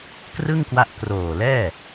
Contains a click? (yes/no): no